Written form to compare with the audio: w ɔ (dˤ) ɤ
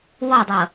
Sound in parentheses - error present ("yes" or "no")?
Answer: no